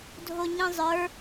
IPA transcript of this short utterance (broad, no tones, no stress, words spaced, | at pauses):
dʱoɲĩzˤə˞